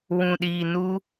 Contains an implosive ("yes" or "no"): yes